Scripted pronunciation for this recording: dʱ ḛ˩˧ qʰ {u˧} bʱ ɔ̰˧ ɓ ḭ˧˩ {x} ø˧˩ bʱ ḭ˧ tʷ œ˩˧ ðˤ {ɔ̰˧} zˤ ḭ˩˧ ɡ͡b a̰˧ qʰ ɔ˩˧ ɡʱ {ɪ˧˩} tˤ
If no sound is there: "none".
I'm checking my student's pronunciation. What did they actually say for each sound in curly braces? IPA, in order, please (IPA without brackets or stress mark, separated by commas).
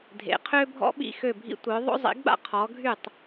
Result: ø˧, x, o̰˧, y˧˩